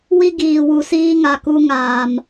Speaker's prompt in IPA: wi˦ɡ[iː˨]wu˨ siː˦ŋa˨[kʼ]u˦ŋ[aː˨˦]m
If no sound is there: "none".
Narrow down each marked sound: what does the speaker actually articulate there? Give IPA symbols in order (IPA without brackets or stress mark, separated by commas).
iː˨, k, aː˨